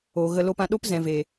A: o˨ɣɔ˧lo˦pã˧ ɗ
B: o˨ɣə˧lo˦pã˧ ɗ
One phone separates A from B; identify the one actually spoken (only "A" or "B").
B